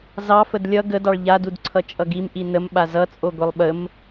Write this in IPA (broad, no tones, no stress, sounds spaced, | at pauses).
z ɑ f ə d lʲ ʌ ɡ ə d ɑ ɭ ʎ a d u d ǀʰ ʌ t͡ʃʼ ʌ ɡ i m ʔ i n ə m ɓ a z ʌ t͡sʼ o ɡʷ i lˠ ɓ ə m